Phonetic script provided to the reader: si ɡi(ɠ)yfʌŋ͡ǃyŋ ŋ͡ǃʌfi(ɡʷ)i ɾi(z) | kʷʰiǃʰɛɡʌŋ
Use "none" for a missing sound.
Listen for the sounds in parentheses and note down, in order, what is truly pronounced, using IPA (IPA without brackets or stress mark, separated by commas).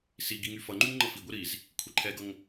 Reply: ŋ, ɡʷ, z